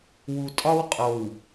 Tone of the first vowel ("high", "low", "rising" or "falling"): low